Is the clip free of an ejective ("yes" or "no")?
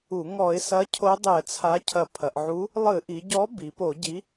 yes